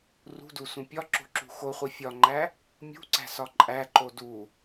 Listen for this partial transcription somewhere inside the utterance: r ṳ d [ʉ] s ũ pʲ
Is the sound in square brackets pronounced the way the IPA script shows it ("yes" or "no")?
no